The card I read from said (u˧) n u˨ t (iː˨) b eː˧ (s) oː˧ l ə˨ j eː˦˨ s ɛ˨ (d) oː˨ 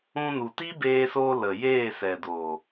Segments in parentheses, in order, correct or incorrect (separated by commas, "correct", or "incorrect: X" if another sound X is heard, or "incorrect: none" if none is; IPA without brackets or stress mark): incorrect: ũ˧, incorrect: iː˦, correct, correct